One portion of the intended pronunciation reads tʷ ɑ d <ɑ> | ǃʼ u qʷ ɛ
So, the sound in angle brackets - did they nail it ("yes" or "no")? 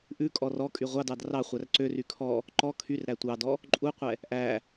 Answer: no